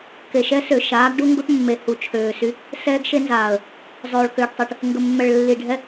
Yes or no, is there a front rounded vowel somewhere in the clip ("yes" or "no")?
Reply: yes